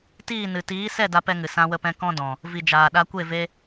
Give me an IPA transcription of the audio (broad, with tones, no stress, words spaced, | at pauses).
tiː˦˨nɨ˨ tiː˨˦sɛ˦˨ da˦pɛ˦ŋɨ˨ sã˧wə˧pɛ̃˧ kɔ̃˦dɔ̃˨ | vi˨d͡ʒaː˨ɗa˧kʷe˦˨ ve˧